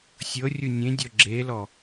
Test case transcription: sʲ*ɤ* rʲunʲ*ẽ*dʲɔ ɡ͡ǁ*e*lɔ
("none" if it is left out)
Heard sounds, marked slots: ɤ, ẽ, e

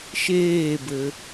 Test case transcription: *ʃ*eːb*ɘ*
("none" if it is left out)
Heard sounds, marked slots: ʃ, ɘ

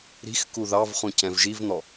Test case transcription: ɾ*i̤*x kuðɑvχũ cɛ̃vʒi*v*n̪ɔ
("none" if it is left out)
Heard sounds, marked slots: i̤, v

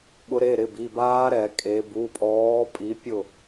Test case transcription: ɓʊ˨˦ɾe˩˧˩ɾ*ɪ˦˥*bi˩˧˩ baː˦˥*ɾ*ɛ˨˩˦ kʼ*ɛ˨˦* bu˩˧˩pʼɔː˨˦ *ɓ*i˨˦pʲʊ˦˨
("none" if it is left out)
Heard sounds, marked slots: ɪ˩˧˩, ɾ, e˨˦, pʼ

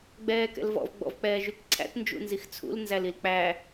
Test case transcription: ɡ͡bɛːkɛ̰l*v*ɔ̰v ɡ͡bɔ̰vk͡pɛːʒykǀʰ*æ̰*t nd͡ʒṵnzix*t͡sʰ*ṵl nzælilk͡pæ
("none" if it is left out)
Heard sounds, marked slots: v, æ̰, t͡sʰ

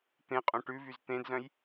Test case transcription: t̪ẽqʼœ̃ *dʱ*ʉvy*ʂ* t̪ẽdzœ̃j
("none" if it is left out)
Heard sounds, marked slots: ʈ, z

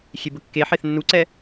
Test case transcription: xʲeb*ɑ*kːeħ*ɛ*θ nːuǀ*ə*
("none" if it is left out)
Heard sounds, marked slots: ə, e, ɛ

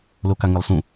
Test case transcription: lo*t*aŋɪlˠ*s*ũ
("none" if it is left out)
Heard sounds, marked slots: k, s

